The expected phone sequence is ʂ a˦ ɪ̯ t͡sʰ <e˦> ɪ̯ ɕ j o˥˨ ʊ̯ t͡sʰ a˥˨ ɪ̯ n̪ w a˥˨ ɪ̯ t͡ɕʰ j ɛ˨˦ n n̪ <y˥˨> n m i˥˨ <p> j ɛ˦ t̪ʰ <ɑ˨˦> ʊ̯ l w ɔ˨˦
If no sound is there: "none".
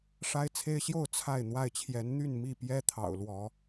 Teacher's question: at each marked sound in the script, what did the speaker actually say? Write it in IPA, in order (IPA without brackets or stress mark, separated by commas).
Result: e˦, y˥˨, p, ɑ̰˨˩